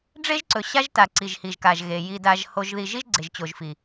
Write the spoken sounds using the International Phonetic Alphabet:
ɖ͡ʐe˦ʒǀɵ˨ɕa˦ʒta˨ ǀi˨ʒhi˨ʒka˨ʒɣe˨ ji˨da˨ʒ ho˨ʒði˨ʒi˦ʒ ɡ͡ǀe˨ʒt͡ɕo˨ʒfi˨

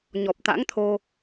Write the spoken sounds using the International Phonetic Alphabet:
ɲɔ˨˩p̚t̪a̰˧˥ŋt̪ʰo˧

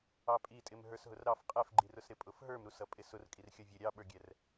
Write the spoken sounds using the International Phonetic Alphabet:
ɑpʼitʼɪm ɦə˞sɦʊrɾɑf qʼɛfɡ͡ǃirʊsɾɪ pʼʊfɦə˞m ɾusʌpʼɪsʊr kʼirxʲʌvʲə ɾʲɑɓə˞ɡʲɛr

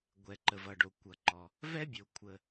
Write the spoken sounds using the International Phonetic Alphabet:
ɡʷɛ˩ǃə˩vʌ˩ɖo˩ kʷʌ˩ǃɔ˩ | vɛ˥bʲo˩ kʷʰə˩

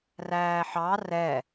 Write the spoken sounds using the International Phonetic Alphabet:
ræːħɑ rɛ

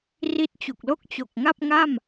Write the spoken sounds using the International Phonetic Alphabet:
ri˦˥t̚t͡ɕu˨˩k̚lo˥˩k̚ t͡ɕo˨˩k̚ŋa˥˩p̚ŋa˥˩m

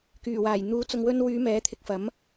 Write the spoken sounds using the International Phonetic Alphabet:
kyː˨˩waː˨˩j n̪uː˨˧t͡sʊ˨ŋwɵ˧nwyː˨˧ mɛː˨˥t̪ʰɪ˨˥k̚fɐ˨˥m

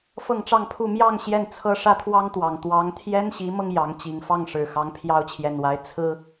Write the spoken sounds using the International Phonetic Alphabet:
fɤ˥˧ŋʈ͡ʂɑ˥˧ŋpʰu˥˧ mjɑ˥˧ŋ ɕjɛ˥˩nt͡sʰɤ˥ ʂä˥t̪ʰwɑ˥ŋt̪wɑ˨˩ŋ t̪wɑ˧˥ŋt̪ʰjɛ˥nɕi˧˥mɤ˧ŋ jɑ˧˥ŋ t͡ɕi˨˩ŋfɑ˥˩ŋʂɻ̩˨˩ xɑ˧˥ŋpʰjɑ˥ʊ̯t͡ɕʰjɛ˨˩nwa˧˥ɪ̯ t͡sʰɹ̩˥

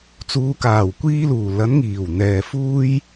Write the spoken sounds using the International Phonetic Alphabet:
t͡suː˨˧kaː˨˩wkʷiː˧luː˨˩ lɐ˨˥n ŋiː˨˩w n̪ɛː˨fuː˥j

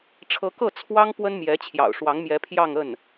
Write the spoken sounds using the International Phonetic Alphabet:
ʈ͡ʂʰɤ˧˥kɤ˥˩ t͡sʰwɑ˥ŋ pwə˥nmjɛ˧˥t͡ɕʰjɑ̰˨˩ʊ̯ʂwɑ˧˥ŋ mjɛ˧˥pʰjɑ˥˧ŋə˥˩n

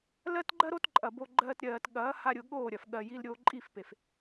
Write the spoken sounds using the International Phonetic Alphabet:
lɜ˦tɡ͡ǃɜ˦ɾo˦t ǃʼɐ˨bo˧ ɡ͡ǃɜː˦tɾʲɜː˧t ɠɐː˨˦ha˧ɾʲʊ˨ ɠoː˦˨ɾʲɐ˨f ɠɜ˧ji˦lɾʲoː˦ ǃʼi˦˨fpe˨f

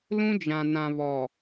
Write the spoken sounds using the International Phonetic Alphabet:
lũ˦d͡ʒã˨nã˨ βɔ˨

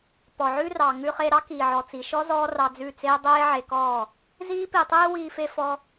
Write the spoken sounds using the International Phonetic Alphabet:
pɔ˨ʕʉ˦rɑ˨ ŋʉ˧χe˧ɾɑ˦ kiː˨ʕɔ˨t͡si˨ʃɔ˦ zɔː˦rɑ˧d͡zʉ˦˨t͡seː˦ dˤeː˦ʕe˧kɔː˦˨ | ziː˦pi˧tˤeː˦ wiː˦fe˦fɔ˦

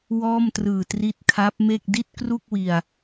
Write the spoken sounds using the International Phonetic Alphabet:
wɔː˥˩mtrɯː˨˩ tri˦˥t̚ kʰa˦˥p̚me˥˩k̚ di˥˩t̚kru˥˩k̚wi˨˩a̯

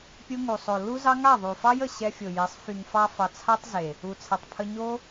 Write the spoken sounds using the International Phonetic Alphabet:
pʲu˧ŋu˨sˤo˨ lu˦zɑ˦ŋa˦˨ ðˤu˨fɑ˦j ə˨ɕɛ˧fʲo˨je˨˦sˤ fy˨ŋfɑ˧fɑ˨ t͡sʰa˦tˤze˨ | u˨t͡sʰɛ˨tˤpʰə˧ ɲo˦

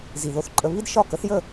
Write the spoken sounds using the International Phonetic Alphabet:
zi˨ðo˧θǃʼə˧ βi˦dʃɒ˦˨ kə˨˦θjə˦˨

